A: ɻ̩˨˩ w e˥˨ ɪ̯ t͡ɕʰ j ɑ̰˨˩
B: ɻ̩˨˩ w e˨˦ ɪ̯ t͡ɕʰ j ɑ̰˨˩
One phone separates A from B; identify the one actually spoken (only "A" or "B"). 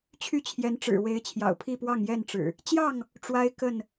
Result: B